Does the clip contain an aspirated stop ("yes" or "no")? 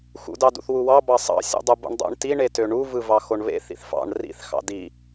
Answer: no